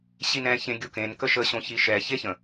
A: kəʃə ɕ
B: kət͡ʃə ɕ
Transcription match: A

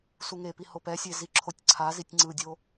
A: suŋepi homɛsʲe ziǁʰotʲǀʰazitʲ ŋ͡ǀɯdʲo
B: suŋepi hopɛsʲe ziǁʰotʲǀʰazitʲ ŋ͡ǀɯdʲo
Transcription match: B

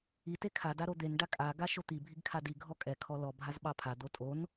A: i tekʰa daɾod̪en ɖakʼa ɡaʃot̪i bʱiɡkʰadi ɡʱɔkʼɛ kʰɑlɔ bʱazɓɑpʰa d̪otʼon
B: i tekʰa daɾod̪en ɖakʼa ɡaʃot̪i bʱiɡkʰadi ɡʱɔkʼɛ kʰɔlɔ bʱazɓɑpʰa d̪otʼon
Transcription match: B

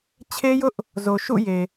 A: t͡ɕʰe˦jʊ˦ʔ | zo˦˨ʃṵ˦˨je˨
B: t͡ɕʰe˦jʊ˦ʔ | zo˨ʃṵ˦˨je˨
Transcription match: B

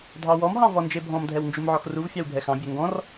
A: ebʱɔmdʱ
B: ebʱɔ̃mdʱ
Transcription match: B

